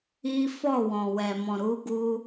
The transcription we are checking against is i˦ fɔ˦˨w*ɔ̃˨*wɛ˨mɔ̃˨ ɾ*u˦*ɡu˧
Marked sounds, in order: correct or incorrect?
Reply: correct, incorrect

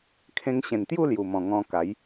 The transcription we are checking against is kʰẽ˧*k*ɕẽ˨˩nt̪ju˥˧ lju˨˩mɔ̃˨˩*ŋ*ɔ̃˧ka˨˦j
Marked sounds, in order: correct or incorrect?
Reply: incorrect, correct

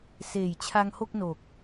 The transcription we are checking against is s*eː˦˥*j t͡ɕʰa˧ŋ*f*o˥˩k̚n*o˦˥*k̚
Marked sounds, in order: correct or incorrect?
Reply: incorrect, incorrect, incorrect

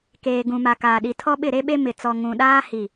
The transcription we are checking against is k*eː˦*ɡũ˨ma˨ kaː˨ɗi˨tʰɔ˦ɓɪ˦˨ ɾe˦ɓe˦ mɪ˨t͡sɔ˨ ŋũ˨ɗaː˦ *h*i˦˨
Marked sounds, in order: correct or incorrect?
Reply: incorrect, correct

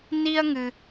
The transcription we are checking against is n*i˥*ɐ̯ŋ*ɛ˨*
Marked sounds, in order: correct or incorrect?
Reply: correct, incorrect

